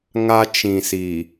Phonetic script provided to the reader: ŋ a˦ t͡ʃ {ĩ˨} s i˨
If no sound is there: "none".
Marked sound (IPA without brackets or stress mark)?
ĩ˨